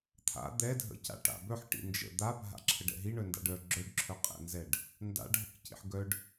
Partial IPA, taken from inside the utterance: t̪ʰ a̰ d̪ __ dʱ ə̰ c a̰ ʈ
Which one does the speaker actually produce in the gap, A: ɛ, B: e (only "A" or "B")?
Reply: A